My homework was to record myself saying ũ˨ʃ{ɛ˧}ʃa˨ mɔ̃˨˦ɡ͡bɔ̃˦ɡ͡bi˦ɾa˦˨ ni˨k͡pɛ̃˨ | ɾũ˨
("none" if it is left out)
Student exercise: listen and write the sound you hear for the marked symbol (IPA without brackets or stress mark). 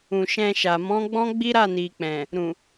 ɛ̃˧